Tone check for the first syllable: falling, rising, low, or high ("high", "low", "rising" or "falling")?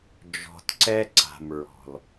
low